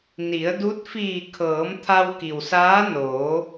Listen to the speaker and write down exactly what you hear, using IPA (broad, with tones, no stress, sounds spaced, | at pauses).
n i˩˧ ə̯ d u˧˥ t̚ f iː˧˩ kʰ ɤː˩˧ m t̪ʰ a˧ w k i˩ w s aː˧˥ n oː˩˧